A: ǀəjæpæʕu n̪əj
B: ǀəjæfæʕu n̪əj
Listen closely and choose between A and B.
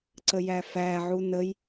B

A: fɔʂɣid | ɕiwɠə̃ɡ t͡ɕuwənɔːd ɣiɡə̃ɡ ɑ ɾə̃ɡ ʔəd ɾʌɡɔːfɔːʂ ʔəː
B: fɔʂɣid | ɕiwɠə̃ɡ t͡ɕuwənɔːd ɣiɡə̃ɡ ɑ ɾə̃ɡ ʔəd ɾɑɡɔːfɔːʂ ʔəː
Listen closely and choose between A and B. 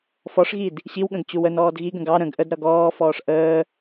A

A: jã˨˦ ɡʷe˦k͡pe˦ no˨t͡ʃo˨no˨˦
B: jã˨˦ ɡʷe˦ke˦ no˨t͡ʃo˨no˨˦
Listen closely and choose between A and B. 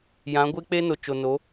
A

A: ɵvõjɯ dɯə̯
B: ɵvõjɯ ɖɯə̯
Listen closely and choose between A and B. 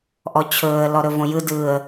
A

